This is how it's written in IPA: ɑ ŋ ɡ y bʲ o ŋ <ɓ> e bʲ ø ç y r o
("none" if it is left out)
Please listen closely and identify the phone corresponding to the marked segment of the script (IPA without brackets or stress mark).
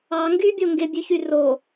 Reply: ɡ